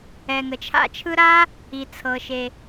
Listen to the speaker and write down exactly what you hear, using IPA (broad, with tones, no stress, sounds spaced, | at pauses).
ɛ˩ ŋ ə˩ t͡ʃʰ a̰˧ t͡ʃʰ ɯ˧ ɾ a˧ | i˩ t͡sʰ ɤ˩ ʃ e˩